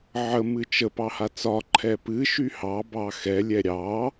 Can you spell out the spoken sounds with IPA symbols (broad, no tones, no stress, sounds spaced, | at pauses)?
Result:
ʕ ə m ɨ t͡ʃ ə p ɑ h a t͡s ɒ ǃʰ ɛ p ɨ ʃ y h ɑ b ɑ x ɛ lʲ ɛ ɾʲ ɑ